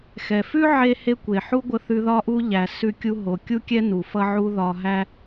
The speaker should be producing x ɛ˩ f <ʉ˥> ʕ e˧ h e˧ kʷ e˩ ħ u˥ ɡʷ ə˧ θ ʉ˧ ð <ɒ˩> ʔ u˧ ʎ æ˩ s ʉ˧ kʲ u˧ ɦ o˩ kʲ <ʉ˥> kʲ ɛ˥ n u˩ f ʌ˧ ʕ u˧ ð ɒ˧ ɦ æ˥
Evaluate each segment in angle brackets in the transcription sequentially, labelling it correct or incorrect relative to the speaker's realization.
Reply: correct, incorrect, incorrect

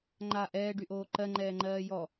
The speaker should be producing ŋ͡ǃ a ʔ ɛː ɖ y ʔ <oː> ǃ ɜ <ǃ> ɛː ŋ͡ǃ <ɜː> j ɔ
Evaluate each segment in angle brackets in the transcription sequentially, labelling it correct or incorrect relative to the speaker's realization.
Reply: correct, incorrect, correct

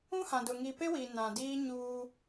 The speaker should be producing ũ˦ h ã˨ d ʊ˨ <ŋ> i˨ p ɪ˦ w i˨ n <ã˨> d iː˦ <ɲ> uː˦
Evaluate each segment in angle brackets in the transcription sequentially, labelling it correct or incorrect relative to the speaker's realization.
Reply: correct, correct, correct

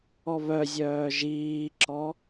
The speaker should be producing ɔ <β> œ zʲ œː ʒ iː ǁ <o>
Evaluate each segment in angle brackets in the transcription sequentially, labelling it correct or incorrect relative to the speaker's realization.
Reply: correct, incorrect

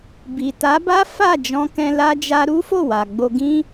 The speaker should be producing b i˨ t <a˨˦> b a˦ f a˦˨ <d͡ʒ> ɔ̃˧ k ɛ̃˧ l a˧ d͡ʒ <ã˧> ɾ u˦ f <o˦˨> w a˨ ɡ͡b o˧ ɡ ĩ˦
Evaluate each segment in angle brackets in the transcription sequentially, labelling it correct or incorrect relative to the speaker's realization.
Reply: correct, correct, incorrect, correct

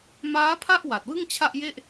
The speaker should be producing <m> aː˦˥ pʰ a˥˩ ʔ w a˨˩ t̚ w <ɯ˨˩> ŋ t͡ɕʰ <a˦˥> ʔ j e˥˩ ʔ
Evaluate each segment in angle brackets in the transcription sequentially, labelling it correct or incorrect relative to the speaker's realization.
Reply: correct, incorrect, incorrect

